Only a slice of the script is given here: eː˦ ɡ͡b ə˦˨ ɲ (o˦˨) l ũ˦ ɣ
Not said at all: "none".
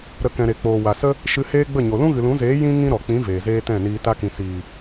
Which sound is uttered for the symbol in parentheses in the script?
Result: o˨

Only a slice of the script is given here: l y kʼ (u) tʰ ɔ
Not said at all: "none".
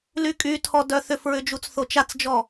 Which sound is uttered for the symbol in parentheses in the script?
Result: y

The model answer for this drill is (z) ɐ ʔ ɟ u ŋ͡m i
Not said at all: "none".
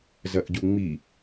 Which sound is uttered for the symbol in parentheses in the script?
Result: z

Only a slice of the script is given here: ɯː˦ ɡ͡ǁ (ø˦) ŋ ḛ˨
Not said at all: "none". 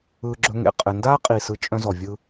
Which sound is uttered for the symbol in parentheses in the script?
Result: ɵ˦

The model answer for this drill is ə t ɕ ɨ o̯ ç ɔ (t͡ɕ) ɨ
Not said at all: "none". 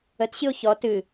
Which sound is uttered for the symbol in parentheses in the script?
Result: t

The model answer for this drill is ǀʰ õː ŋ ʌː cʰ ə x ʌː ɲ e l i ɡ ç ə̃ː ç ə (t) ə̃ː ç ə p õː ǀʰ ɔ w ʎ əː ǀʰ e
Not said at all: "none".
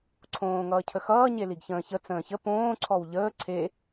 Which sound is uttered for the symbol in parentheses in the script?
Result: t͡s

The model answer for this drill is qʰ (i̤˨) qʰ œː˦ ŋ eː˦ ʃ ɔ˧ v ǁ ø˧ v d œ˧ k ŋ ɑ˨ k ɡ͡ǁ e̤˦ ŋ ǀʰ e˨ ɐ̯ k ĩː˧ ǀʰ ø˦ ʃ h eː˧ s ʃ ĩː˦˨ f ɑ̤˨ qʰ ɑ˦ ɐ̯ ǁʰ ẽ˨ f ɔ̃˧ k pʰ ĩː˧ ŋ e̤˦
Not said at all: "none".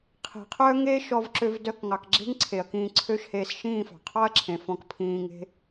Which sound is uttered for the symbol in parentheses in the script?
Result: i̤˨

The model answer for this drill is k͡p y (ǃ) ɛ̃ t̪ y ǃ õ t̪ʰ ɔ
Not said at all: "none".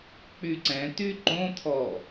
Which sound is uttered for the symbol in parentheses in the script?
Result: ǀ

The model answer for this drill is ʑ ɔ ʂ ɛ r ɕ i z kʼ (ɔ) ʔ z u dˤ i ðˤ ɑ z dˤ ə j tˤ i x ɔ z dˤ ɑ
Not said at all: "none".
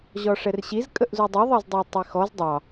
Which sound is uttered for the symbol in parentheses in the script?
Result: ə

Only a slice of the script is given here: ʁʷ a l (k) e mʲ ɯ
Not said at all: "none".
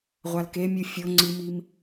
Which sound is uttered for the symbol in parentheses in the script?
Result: k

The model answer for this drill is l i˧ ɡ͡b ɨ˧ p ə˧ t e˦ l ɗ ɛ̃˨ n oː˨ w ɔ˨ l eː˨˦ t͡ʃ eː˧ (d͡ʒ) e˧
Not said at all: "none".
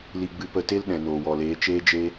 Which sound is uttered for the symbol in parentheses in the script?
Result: d͡ʒ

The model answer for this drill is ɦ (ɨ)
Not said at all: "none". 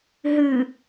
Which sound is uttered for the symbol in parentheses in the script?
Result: ɨ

